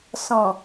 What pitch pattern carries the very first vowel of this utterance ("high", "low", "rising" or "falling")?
low